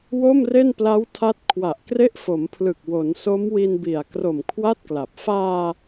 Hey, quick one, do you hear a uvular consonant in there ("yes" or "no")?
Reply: no